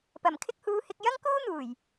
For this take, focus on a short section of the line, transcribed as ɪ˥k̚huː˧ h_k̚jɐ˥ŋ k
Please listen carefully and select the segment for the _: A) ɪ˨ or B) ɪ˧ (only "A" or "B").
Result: B